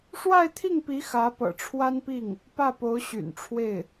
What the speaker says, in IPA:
ʂ w a˥˧ ɪ̯ t̪ʰ i˥˩ ŋ p i˧˥ x ä˧˥ p ɤ̰˨˩ ʈ͡ʂʰ w a˥ n p i˥˩ ŋ | p ä˥˩ p o˧˥ ʊ̯ ɕ y̰˨˩ n ʈ͡ʂʰ w e˥˩ ɪ̯

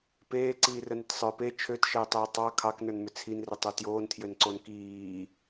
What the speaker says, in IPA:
p eː ǀ iː r ə n ʏ t sˤ ə˞ p e t͡ʃʰ ø t ʃ əː tˤ əː tˤ ɑ kʰ ɑ k n ə˞ n m ʏ t͡sʰ i n r ʏ tˤ o t j oː n tʰ j ø n ǀ o n k iː

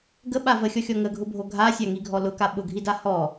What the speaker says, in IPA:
ɡ ə ɓ a v ə xʲ ɔ xʲ ɔ ŋ ə ɡʱ ʊ bʱ o ɡʱ a sʲ a ŋ i ɡʱ ɔ l ʊ k a ɓ ʊ ɡʱ i d a h ɔ

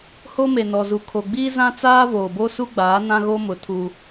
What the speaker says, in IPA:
h o˦ m e˨ n ɔ˨ z u˨ kʰ o˨ ɡ͡b iː˦ z ã˦ t͡s aː˦ v oː˨ b o˦ s u˦ ɡ͡b aː˨˦ n ã˦ ɣ o˦ m ʊ˨ tʰ u˦

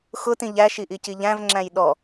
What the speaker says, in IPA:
x ʊ t ĩ ʎ æ ʃ i ʔ i c i ʎ æ̃ v ŋ͡ǁ æ̃ j ɗ ɔ

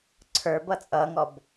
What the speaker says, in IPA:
ǀʰ ə˞ b ʌ t͡sʼ ʌ ŋ ɔ b

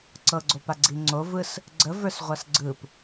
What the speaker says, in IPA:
ǀ ɤ ɡ͡ǀ o p a ɡ͡ǀ i ŋ͡ǀ o v ɯ s | ɡ͡ǀ ə v ə˞ s ʁʷ a s ɡ͡ǀ ɯ p

